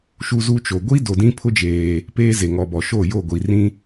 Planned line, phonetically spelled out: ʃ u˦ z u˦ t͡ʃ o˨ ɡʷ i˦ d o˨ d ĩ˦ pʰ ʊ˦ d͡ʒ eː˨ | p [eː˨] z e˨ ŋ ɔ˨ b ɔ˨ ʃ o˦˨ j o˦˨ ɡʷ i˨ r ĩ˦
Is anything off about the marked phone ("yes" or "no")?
yes